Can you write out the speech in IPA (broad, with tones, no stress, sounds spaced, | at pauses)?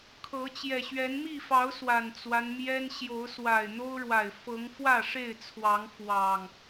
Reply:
kʰ ɤ˨˦ t͡ɕ j ɛ˨˩ ɕ ɥ ɛ˨˦ n m i˥˨ f ɑ˨˦ ʊ̯ s w a˨˩ n t͡s w a˦ n m j ɛ˦ n ɕ j o˨˦ ʊ̯ s w a˨˩ ɪ̯ n̪ o˦ ʊ̯ ɻ w a˨˩ ɪ̯ f ɤ˨˦ ŋ f w ä˥˨ ʂ e˥˨ ɪ̯ t͡sʰ w ɑ˨˦ ŋ f w ɑ˨˩ ŋ